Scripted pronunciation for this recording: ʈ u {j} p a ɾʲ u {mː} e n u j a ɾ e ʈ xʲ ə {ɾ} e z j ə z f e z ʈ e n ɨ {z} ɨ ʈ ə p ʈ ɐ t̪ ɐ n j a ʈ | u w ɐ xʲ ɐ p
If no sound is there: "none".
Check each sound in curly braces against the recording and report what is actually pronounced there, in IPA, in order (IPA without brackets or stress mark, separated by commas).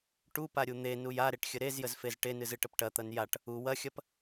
none, n̪, ɾ, z